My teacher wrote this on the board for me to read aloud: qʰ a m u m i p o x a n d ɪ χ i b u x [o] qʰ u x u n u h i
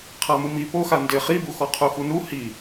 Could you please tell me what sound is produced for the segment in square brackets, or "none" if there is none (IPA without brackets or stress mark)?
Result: ɔ